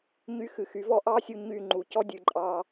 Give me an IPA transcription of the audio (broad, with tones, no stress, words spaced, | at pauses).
ɲy˦˨xɨ˨xy˩˥vɔ˥ ʔɑ˥sʲu˦˨ ɲy˦˨ŋ͡ǃu˨ cɔ˥dʲɨ˨ǃʼɑ˦˨